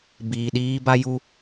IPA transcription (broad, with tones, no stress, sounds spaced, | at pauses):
b iː˨ ɗ iː˦ b a˦ j u˦